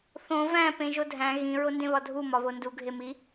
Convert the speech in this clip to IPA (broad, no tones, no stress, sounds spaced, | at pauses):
θ õ v æ̃ p ẽ ʒ o dʱ æ̃ ɣ ĩ ɹ o n d ẽ β ɒ dʱ u m ɒ β o n d u ɡʱ e m i